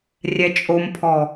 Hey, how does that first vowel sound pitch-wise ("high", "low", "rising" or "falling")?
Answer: low